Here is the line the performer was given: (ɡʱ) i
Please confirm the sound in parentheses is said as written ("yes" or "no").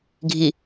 yes